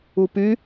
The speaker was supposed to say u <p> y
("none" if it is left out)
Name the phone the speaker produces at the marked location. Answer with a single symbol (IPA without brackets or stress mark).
p